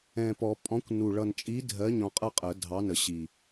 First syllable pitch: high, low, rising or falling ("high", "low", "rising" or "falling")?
low